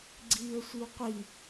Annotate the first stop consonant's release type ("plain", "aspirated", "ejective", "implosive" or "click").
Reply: click